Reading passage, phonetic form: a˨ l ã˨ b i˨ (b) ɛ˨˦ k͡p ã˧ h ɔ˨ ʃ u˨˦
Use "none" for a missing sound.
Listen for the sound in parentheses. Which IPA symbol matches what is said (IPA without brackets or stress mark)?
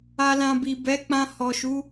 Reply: b